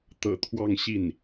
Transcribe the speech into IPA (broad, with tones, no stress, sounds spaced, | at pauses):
t̪ ɤ̰˨˩ t̪ʰ w ɑ˥˧ ŋ ɕ i˥˩ n